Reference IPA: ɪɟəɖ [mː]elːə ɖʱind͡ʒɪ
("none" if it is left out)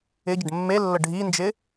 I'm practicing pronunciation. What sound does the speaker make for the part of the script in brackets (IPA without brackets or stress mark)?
mː